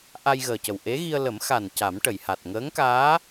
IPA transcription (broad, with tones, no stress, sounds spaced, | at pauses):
ʔ a˧ j ɣ əː˨˩ c ə˨˩ w ʔ e˧˥ ɣ i˧ ə̯ l ə˨˩˦ m x a˨˩ n c a˨˩˦ m ʈ ə˨˩˨ j h a˨˩ t̚ ŋ əː˧˥ ŋ k aː˧˥